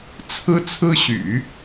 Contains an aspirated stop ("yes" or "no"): yes